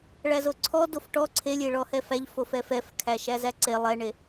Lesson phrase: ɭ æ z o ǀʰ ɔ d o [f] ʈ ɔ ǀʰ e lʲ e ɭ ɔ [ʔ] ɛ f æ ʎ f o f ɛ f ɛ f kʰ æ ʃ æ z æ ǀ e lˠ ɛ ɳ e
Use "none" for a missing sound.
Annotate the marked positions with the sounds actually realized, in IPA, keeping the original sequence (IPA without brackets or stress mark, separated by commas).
f, h